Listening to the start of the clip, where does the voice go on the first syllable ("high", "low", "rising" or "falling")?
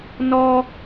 high